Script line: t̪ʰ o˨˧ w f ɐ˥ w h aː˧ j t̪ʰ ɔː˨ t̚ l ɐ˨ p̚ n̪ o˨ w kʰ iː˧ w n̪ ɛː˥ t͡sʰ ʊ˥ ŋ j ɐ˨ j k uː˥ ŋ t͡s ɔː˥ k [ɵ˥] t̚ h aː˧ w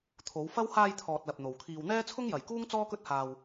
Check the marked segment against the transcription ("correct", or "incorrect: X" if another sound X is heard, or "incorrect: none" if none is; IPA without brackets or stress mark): correct